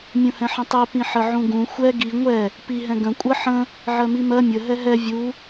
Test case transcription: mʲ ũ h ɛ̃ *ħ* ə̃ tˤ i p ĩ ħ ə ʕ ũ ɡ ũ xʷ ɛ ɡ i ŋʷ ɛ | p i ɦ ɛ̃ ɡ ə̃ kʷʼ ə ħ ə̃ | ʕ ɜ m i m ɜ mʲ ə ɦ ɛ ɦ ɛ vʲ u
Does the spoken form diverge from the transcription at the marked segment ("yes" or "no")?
no